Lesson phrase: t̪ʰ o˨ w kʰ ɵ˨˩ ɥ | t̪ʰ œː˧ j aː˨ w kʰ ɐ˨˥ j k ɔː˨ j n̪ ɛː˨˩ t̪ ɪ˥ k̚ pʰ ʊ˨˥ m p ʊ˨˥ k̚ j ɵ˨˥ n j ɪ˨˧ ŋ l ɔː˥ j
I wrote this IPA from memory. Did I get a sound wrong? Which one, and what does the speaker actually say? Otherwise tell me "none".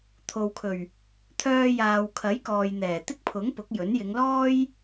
m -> ŋ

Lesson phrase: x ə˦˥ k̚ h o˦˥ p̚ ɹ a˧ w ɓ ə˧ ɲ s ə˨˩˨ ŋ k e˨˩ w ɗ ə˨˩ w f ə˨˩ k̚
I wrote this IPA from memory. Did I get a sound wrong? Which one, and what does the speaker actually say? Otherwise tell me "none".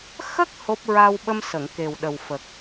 ɲ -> m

